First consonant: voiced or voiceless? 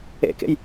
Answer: voiceless